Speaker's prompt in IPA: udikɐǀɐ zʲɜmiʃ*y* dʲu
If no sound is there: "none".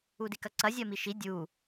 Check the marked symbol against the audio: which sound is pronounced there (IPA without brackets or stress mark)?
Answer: i